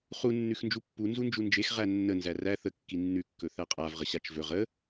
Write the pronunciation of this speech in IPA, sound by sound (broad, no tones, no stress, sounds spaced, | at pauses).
χ u nː ʉ x n d͡ʒ u pː u n z u n d͡ʒ u n d͡ʒ e x ʁ æ nː ə n z æ r æ θ ə kː i nː ʉ kː ɵ θ æ qʼ a v ʁ ə ɕ a t͡ʃ v ɵ ʁ ə